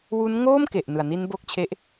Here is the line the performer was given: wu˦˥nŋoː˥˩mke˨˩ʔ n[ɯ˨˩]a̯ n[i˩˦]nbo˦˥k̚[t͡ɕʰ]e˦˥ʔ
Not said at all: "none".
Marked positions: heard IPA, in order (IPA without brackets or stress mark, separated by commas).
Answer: ɯ˨˩, i˦˥, t͡ɕʰ